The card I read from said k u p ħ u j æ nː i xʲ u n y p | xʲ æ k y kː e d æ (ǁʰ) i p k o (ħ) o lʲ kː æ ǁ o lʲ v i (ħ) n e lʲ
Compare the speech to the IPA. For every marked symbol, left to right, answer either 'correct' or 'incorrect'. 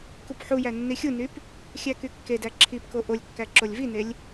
correct, incorrect: ʔ, incorrect: none

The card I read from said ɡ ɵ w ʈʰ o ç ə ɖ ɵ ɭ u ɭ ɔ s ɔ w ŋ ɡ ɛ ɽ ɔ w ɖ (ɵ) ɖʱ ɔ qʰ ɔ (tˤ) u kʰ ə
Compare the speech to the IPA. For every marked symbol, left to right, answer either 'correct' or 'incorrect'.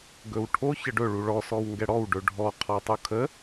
correct, correct

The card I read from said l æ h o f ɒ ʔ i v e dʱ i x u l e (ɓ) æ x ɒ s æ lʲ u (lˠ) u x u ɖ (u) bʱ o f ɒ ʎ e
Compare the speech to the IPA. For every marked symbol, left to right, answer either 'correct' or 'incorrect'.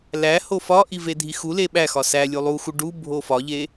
correct, correct, correct

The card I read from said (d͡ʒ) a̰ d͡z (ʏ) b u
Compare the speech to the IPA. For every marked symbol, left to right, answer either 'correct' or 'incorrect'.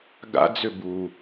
incorrect: ɡ, correct

